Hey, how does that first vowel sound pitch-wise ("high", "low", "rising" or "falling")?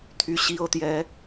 low